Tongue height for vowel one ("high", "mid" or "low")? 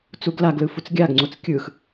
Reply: high